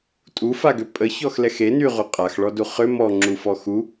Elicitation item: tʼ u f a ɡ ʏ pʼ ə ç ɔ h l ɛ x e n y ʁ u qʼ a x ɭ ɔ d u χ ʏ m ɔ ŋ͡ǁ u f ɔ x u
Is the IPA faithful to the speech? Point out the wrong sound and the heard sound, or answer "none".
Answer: h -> x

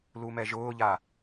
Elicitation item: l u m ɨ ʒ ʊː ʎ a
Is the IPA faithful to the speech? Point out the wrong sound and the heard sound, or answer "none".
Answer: ɨ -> ɛ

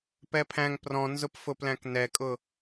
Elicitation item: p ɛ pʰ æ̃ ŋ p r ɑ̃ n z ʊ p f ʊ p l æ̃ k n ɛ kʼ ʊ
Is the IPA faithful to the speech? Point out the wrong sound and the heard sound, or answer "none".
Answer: ɑ̃ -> ɔ̃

